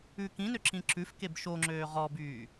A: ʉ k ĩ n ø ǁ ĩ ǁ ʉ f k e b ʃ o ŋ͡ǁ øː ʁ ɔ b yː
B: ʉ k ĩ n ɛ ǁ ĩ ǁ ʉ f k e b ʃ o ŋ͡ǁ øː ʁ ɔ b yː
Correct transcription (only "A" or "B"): A